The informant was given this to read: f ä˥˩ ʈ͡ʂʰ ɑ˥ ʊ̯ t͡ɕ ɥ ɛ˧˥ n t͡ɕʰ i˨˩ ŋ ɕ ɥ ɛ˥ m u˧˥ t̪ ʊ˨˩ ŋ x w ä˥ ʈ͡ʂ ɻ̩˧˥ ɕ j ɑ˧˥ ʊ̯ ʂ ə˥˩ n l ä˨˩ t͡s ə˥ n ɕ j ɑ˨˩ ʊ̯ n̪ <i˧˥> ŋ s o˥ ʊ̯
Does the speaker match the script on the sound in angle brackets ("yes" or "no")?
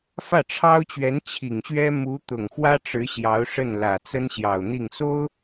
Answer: no